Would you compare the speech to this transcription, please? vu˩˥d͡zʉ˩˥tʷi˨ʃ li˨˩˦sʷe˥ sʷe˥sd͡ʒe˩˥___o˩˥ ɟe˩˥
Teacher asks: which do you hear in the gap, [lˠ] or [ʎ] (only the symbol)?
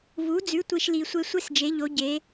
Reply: ʎ